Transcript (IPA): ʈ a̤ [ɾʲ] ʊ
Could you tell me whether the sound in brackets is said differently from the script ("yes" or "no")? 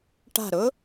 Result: yes